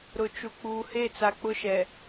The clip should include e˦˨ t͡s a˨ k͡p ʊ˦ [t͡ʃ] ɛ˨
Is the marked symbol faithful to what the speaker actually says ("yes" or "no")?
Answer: no